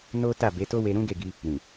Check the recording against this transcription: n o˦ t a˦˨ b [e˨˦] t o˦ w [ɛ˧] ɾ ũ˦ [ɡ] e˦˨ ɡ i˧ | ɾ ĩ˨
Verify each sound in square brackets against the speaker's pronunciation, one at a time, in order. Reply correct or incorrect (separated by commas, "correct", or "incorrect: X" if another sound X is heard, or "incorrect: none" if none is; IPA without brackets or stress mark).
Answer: correct, incorrect: e˧, correct